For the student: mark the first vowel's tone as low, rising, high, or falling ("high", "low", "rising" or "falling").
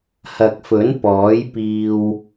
low